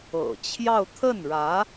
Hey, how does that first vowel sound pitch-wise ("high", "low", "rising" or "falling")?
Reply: low